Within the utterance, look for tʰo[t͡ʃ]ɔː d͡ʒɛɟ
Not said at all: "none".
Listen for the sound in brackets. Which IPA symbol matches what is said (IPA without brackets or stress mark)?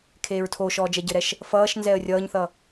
ʃ